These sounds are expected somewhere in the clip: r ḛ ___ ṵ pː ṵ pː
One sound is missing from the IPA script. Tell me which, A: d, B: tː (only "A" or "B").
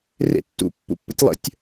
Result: B